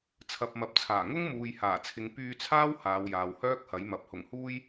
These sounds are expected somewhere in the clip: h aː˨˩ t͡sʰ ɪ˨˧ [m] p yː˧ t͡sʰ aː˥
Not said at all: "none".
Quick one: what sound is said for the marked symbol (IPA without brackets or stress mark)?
ŋ